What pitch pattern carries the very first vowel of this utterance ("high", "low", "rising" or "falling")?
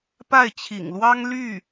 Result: falling